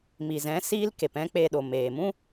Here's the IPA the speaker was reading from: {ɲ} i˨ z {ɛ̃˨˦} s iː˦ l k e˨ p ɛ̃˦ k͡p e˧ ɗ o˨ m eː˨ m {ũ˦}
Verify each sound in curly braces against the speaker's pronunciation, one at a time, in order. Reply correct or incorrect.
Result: incorrect: m, correct, correct

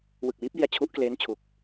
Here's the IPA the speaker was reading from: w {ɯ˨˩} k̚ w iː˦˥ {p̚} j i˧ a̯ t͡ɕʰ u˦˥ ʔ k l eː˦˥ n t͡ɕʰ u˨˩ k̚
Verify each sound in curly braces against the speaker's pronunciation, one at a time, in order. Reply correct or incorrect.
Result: correct, correct

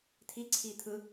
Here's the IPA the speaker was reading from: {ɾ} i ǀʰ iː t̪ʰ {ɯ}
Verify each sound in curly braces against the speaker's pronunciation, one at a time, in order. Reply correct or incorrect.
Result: incorrect: t̪ʰ, correct

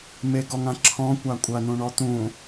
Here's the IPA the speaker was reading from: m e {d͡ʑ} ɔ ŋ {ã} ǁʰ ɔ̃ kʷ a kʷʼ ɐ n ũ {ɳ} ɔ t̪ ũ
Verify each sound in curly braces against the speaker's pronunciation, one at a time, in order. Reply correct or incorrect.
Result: incorrect: ɡ, correct, correct

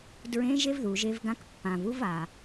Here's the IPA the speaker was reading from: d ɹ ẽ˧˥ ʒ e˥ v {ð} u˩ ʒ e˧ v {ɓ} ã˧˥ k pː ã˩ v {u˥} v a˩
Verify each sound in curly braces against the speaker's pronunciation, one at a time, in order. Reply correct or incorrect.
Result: correct, incorrect: ɡ, correct

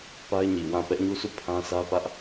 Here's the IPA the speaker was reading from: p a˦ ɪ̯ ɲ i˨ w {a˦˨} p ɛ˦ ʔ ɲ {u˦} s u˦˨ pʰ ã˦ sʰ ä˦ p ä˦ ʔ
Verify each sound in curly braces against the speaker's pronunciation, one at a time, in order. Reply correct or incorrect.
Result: incorrect: ã˦˨, correct

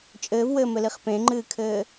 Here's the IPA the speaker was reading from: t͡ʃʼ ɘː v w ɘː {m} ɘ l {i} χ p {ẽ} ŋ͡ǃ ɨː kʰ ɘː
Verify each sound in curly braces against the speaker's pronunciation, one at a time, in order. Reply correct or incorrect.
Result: correct, correct, correct

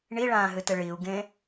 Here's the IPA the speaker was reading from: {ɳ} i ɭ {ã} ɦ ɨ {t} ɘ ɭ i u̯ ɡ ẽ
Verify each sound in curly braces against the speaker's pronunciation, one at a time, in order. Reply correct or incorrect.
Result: correct, incorrect: ãː, correct

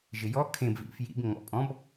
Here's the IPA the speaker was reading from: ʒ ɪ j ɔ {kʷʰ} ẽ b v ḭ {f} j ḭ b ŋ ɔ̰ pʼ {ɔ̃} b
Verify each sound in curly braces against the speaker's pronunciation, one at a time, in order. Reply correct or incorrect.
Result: incorrect: kʰ, correct, correct

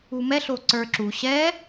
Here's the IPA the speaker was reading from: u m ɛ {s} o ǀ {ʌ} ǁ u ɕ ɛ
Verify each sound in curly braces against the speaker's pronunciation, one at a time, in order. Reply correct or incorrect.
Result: incorrect: ɬ, incorrect: ə˞

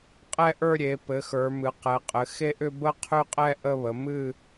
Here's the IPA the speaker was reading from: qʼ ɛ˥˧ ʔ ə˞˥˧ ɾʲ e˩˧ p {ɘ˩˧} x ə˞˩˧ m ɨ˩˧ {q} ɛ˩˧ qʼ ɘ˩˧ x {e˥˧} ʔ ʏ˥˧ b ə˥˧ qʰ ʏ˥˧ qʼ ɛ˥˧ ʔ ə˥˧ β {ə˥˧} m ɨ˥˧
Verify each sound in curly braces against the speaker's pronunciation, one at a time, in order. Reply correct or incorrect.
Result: correct, correct, correct, incorrect: ə˩˧

